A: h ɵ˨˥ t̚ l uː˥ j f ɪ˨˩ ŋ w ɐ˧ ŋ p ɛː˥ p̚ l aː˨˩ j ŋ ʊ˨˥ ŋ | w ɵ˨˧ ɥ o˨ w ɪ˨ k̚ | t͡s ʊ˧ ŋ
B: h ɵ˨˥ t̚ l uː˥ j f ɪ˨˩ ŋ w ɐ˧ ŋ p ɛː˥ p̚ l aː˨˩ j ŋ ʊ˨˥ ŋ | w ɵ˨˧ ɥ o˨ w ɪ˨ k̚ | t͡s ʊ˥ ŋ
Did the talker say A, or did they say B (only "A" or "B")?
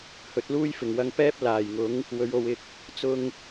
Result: A